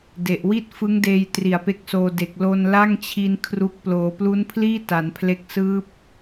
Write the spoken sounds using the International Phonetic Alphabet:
de˨˩ʔ wi˥˩t̚ fɯ˦˥ŋdeː˧j tri˨˩a̯pe˦˥k̚soː˧ de˨˩k̚lo˧n la˥˩ŋt͡ɕʰi˧n kʰru˦˥k̚ ploː˩˦plu˦˥npʰliː˥˩ ta˩˦npʰle˦˥k̚ sɯː˦˥p̚

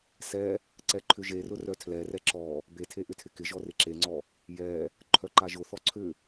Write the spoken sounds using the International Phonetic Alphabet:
sɛ | ǀɛǃʰʏʒerʊ rœtʰlɛrɛ ǁɔ | betʰe ʔʏtʰɪkɪʒɔ rɪǁeŋ͡ǀɔ | jɛ | ǃʰœǃaʒʊθɔ ǀʰʏ

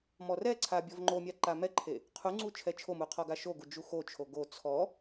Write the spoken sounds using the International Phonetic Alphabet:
mɔrɛǀʰa bʲɔvŋ͡ǃomʲa ǃamɛǃʰe | qʰuŋ͡ǀu t͡ʃʰɛt͡ʃʰomu qʰɔɡaʃoɡu d͡ʒuxot͡ʃʰo ɡo t͡sʰɔ

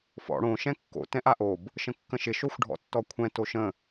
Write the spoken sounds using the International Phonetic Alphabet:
fɔ̰ ɽõ ʃɛ̃kːo̰ tɛ̃ʔaʔob | ʃə̃kːə̃ʃɪ ʃoxʷɖʱɔ̰tːɔkʷʰɛ̃ toʃə̃

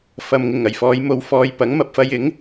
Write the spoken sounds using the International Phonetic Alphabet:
fɐ˨mŋɪ˨˩ŋɐ˨˩jfɔː˨˧j mo˨wfɔː˨j pɐ˨˥ŋmɐ˧p̚fɐ˧j ɪ˨˥ŋ

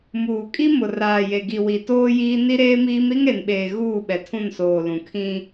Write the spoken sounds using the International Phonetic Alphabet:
muː˨kʼi˦mʊ˨ raː˨je˨ɡi˨ wi˨toː˦ jiː˦ ni˦ɾeː˦miː˦m ɾi˦ŋɾe˨nɓeː˨ ɣuː˦˨ɓɛ˨tʰũ˦˨nsoː˨ lũ˨kʰĩ˦

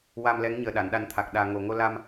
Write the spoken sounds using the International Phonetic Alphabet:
wa˧mlɛ˧˥ŋ ɲəː˨˩ɗa˨˩˨nɗa˨˩˦nt̪ʰa˨˩k̚ ɗaː˨˩ŋo˨˩ŋo˧la˧m

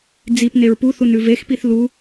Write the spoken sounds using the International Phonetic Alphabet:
d͡zip neɹpuθun ʉvexpiθ lu

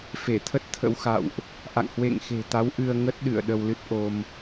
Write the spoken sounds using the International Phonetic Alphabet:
fe˧˩t̪ʰə˦˥t̚ t̪ʰə̰˧˥w xa̰˧˨wʔ | ʔa̰˧˨ŋhwḛ˧˨ŋxe̤˨˩t̪a˨˦w ʔɨ˧ə̯ ŋə˦˥t̚ɗɨ̰˧˨ə̯ ɗə˧wlɨ˦˥t̚ʔo˧m

